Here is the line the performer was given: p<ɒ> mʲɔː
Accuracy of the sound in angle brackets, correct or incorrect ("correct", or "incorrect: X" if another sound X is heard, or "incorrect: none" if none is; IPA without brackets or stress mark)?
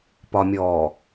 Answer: correct